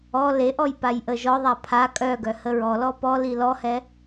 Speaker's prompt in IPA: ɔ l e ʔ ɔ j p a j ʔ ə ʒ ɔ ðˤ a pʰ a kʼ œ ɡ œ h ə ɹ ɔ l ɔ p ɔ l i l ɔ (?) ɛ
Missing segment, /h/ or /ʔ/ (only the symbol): h